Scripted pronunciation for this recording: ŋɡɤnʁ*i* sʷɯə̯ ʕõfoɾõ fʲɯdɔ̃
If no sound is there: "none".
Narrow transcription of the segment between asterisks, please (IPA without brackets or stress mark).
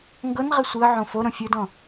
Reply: i